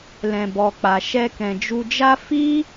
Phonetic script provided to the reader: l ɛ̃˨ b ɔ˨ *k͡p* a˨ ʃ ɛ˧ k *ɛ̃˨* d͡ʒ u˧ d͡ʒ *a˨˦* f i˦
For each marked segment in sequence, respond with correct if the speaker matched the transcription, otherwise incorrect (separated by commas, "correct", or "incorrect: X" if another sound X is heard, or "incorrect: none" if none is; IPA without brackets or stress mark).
correct, correct, incorrect: a˦